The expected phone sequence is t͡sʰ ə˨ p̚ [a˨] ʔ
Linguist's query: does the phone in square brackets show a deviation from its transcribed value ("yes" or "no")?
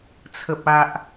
no